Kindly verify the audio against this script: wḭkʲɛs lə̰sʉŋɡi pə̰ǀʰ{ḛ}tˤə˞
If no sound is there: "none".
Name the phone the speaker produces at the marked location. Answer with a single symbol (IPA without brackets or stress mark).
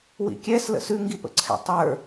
ɛ̰